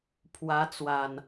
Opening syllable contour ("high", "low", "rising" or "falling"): rising